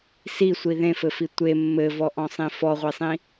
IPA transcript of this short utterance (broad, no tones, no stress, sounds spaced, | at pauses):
s i sʷ i ð ẽ f ɘ f i tʷ e mː ɘ v ɔ ʔ ɔ̃ sˤ ĩ f ɔ ʁʷ e sˤ ĩ